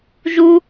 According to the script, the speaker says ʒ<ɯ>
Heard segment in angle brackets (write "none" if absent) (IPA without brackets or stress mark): u